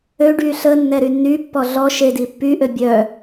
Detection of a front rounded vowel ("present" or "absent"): present